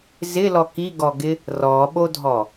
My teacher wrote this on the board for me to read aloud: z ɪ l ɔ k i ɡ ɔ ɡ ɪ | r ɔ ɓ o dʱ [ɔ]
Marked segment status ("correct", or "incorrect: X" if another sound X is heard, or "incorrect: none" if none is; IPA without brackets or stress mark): correct